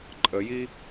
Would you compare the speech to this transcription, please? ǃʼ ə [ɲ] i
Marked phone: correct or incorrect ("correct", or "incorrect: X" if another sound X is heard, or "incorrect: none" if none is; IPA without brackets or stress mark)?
incorrect: j